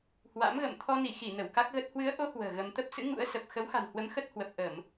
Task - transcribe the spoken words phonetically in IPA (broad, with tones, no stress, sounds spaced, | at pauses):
h w a̰˧˥ m ɣ ə̰˧˨ m t̪ʰ ɔ˧ n i˧˩ x i˧˩ n ə˧˩ w k a˦˥ k̚ ɣ ə˦˥ t̚ h w ɨ˨˦ ə̯ ʔ o˨˦ h w ə̤ː˨˩ ɣ ə˧ m t̪ ə˦˥ p̚ s ɨ̰˧˥ ŋ ṵ˧˥ ə̯ s ə˨˩ p̚ x ə˨˦ w x a̤˨˩ n h w ə˨˦ m x ə˦˥ t̚ h w ə˨˩ p̚ ʔ ə˧˩˨ m